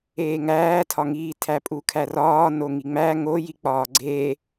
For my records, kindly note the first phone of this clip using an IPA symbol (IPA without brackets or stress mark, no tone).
eː